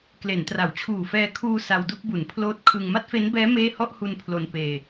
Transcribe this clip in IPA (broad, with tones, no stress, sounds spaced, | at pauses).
k l e˩˦ n t r a˩˦ w t͡ɕʰ uː˨˩ f ɛː˧ kʰ uː˧ s a˧ w d u˥˩ k̚ b u˩˦ n pʰ l oː˦˥ t̚ kʰ ɯ˧ ŋ m a˥˩ t̚ f e˦˥ n b ɛː˦˥ m eː˥˩ h ɔ˥˩ ʔ h u˧ n pʰ l o˧ n p eː˧